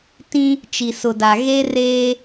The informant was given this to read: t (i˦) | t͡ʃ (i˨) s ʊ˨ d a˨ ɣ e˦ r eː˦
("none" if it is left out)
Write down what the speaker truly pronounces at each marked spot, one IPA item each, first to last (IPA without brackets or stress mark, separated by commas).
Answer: ĩ˦, i˨